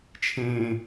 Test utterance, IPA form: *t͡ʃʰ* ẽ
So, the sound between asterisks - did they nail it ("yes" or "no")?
yes